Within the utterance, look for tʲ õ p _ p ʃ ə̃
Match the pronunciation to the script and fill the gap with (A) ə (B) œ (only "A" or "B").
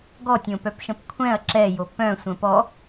B